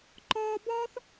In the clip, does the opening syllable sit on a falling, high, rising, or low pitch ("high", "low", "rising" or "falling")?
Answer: high